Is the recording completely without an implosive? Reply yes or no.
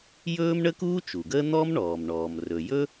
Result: yes